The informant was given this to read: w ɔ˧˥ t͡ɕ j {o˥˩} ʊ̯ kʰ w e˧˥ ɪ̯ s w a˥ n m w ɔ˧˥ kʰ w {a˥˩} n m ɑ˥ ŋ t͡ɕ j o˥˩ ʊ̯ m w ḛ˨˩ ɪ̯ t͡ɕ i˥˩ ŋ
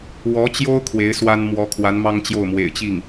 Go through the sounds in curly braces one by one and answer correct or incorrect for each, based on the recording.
incorrect: o˥, incorrect: a˧˥

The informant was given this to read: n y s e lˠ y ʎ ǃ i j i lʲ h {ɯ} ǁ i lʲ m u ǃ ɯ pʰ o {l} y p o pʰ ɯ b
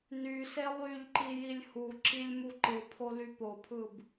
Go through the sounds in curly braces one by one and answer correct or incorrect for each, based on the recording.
incorrect: u, correct

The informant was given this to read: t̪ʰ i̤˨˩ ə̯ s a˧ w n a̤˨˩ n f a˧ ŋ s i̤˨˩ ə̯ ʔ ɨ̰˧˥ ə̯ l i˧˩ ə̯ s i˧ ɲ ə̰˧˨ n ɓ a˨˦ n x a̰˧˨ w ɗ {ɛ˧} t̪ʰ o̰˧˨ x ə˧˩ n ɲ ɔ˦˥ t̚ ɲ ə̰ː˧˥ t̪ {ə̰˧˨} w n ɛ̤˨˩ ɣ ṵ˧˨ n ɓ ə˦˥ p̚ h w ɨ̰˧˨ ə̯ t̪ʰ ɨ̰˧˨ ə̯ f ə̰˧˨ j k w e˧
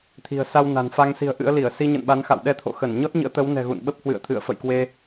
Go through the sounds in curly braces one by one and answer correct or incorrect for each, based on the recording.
correct, incorrect: ə˨˦

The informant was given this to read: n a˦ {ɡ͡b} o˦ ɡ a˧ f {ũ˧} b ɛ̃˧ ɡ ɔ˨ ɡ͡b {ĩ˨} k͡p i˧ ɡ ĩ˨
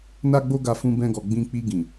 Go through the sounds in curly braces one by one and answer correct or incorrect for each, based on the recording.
correct, correct, incorrect: ĩ˧

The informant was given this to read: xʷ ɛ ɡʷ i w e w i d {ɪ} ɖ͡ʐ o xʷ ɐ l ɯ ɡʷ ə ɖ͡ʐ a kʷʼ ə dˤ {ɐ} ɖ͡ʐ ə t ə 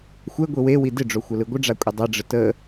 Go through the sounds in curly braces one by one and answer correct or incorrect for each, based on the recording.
correct, correct

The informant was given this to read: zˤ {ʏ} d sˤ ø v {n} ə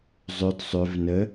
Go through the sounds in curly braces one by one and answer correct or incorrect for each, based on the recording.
correct, correct

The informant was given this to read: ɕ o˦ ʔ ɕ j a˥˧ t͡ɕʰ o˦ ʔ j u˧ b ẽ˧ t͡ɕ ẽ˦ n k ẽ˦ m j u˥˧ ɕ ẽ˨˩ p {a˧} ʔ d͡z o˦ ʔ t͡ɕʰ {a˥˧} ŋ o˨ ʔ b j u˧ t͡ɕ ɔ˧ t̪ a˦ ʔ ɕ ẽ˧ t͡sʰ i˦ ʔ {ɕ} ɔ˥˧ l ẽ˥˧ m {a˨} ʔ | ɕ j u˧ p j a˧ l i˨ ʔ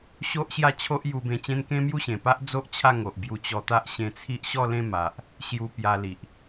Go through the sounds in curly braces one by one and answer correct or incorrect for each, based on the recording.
incorrect: a˦, correct, correct, correct

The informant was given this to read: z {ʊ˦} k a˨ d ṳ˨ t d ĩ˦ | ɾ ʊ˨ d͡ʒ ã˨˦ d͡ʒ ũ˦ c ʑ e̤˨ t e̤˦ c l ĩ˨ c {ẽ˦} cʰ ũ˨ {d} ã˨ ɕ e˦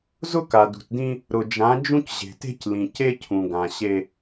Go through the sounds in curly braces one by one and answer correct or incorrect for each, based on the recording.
correct, incorrect: e˦, incorrect: ɡ

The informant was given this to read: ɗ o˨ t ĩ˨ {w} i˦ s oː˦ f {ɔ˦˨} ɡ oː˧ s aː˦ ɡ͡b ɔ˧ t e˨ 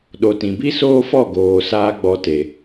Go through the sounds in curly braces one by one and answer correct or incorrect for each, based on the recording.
incorrect: b, correct

